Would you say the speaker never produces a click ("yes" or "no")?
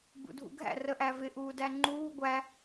no